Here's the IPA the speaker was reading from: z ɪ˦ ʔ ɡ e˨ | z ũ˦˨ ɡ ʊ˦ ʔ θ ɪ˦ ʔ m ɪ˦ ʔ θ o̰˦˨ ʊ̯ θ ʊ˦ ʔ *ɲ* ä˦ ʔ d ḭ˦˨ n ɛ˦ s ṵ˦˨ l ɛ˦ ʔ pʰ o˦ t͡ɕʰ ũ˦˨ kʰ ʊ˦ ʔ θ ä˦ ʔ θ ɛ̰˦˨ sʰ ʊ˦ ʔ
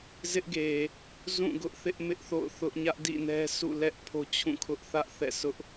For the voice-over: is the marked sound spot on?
yes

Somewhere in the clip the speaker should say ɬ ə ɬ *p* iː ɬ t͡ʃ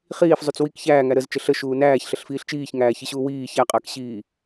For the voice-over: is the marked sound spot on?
no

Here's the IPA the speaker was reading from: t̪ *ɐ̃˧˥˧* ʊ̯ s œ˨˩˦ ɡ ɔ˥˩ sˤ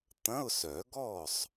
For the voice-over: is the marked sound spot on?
yes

